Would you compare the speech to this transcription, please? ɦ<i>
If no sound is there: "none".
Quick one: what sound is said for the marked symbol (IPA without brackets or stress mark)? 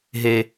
e